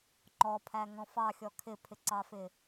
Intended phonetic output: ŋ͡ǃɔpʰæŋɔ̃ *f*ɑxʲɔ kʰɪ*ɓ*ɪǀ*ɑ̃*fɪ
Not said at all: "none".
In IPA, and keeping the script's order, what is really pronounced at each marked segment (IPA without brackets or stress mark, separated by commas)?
f, pʰ, ɑ